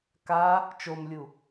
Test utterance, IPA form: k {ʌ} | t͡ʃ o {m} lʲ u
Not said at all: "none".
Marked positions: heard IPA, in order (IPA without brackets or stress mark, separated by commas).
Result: a, m